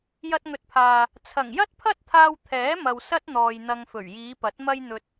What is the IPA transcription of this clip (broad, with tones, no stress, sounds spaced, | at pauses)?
j ɐ˧ t̚ ŋ ɵ˨˥ t̚ pʰ aː˨ | t͡sʰ ɐ˨˩ ŋ j ɐ˥ t̚ pʰ ɐ˥ t̚ t̪ʰ aː˧ w t̪ʰ ɛː˨˥ m ɐ˨ w s ɐ˥ t̚ n̪ ɔː˨ j n̪ ɐ˧ ŋ f ɵ˨˩ ɥ j iː˨˧ p ɐ˨˥ t̚ m ɐ˧ j n̪ ɵ˨ t̚